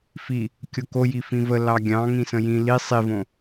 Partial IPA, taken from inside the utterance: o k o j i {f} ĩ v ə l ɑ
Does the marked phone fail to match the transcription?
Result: no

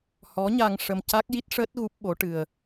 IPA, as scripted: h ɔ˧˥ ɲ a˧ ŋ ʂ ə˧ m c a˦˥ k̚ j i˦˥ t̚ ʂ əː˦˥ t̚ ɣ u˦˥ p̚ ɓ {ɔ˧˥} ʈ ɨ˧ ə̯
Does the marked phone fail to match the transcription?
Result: yes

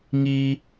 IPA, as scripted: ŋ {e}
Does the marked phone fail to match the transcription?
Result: yes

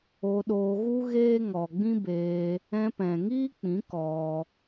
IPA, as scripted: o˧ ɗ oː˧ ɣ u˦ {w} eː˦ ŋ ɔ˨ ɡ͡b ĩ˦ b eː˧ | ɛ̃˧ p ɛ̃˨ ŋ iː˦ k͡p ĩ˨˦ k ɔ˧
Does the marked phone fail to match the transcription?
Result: yes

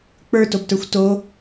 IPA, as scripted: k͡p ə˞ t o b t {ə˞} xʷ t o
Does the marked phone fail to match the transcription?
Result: no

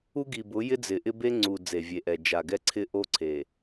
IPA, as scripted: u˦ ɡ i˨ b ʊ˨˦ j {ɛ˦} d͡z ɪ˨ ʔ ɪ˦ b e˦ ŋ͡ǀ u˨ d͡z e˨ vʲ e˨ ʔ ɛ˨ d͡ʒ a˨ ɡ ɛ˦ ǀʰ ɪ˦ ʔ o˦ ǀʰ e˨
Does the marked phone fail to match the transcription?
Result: yes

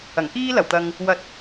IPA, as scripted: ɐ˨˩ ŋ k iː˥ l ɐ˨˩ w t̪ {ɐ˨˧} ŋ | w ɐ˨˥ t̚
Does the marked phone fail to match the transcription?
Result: yes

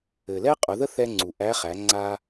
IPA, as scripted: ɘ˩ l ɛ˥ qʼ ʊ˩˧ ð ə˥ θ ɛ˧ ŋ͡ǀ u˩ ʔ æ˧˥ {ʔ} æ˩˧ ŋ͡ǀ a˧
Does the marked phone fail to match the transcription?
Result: yes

